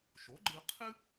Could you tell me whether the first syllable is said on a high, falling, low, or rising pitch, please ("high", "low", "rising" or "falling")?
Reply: rising